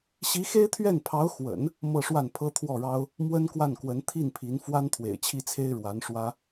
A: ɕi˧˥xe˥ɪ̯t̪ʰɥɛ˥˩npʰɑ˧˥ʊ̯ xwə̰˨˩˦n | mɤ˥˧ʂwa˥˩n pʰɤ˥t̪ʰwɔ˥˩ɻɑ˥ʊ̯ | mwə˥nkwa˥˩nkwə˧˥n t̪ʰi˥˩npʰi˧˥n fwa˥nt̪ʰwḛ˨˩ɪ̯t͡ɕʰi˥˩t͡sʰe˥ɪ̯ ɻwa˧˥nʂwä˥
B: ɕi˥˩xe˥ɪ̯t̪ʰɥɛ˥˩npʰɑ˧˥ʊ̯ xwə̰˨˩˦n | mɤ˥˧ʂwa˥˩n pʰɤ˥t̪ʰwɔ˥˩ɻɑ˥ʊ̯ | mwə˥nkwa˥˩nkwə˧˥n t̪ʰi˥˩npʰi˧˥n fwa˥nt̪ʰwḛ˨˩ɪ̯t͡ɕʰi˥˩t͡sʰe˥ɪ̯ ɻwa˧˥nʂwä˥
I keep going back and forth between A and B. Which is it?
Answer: A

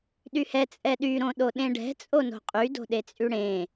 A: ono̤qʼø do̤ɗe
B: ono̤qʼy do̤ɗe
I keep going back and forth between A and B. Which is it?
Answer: B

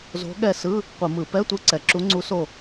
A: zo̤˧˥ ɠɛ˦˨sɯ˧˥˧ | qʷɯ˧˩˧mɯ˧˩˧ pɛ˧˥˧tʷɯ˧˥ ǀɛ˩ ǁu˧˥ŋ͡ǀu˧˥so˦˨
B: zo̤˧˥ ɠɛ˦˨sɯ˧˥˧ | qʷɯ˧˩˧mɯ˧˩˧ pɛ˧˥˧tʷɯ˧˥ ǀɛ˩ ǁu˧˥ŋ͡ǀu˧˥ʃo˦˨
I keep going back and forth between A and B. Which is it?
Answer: A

